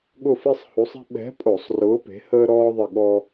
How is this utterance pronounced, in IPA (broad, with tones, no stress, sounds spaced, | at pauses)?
ɠ ʊ˦˨ f i˦ sˤ h u˨˥ sˤ i̤˦ ɓ ɛ̤˨˥ pʼ o˧˩˧ sˤ r ʊː˨˥ p e̤˨˥ h əː˦ ɾ ɔː˦ ðˤ ɪ˦˨ ɠ ɔ˦